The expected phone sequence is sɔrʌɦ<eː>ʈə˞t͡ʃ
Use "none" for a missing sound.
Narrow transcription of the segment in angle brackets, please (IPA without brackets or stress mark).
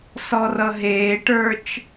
eː